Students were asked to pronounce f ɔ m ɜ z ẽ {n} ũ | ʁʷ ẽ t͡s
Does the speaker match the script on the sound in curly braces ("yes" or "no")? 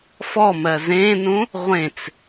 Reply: yes